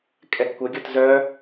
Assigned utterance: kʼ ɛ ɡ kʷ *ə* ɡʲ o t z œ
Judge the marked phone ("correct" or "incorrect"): correct